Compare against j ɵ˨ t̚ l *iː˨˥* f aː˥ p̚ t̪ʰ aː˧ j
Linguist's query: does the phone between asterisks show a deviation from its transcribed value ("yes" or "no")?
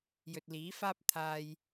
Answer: no